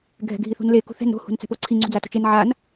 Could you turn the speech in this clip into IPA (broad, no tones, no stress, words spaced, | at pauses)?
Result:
ɡʱɛ̤ɡʱiθṳnle kṳθɛ̤n ɾo̤ hṳnt͡sɛ̤poǀʰi ŋ͡ǀṳd͡zato̤t͡ʃen ʕan